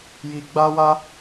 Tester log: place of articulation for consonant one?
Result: palatal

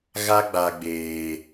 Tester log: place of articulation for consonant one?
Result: velar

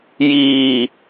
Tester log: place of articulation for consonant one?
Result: palatal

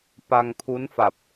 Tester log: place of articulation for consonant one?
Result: labial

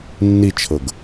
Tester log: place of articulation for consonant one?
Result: alveolar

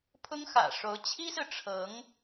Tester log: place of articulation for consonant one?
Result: labial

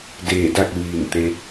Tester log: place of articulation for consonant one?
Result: alveolar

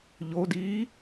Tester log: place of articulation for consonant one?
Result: palatal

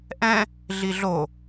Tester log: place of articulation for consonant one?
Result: glottal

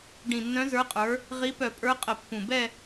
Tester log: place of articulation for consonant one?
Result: retroflex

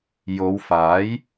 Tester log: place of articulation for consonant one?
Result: palatal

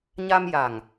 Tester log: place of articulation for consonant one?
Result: palatal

